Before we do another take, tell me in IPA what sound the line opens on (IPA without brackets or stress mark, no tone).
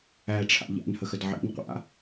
æ